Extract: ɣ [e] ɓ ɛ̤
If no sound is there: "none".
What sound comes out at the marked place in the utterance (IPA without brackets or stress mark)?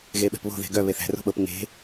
e